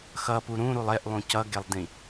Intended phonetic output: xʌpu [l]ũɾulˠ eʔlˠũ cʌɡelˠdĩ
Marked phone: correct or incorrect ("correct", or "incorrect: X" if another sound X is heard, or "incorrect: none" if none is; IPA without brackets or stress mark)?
incorrect: ɾ